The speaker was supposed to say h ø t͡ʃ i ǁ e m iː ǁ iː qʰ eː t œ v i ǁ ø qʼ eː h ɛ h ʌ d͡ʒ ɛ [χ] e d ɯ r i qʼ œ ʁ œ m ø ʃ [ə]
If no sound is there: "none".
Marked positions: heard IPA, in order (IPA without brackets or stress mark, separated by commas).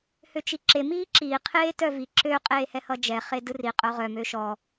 χ, ɔ